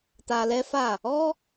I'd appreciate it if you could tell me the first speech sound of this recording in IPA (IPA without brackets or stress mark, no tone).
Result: t